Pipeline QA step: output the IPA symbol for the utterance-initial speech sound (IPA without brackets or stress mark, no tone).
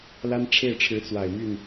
l